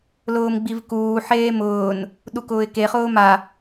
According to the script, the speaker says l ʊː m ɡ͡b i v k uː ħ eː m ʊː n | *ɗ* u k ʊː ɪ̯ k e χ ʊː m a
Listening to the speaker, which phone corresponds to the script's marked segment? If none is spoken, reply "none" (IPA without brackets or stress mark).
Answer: ɗ